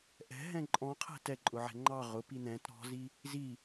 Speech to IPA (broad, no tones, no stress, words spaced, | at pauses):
ʔɛ̤ɦɛ̃ ǃʼɔ̃qʰɛ̤ tɛǃʼʊʕɛ̤ ŋ͡ǃɑ ʁʊpi n̪ɛ̃t ɾɔ̤zi | zi